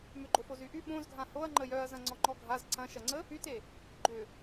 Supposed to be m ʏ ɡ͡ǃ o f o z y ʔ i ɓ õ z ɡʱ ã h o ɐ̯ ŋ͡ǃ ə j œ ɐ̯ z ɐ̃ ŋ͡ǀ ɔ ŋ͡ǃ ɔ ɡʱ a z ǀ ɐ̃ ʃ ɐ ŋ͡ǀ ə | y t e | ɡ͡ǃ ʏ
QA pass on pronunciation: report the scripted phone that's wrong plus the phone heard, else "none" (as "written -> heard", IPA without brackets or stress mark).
i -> y